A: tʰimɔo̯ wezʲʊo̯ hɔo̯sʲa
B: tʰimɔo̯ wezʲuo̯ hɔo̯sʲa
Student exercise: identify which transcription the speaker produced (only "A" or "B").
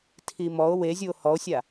B